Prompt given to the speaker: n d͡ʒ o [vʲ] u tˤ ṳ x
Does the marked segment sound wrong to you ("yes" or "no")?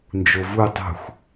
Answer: yes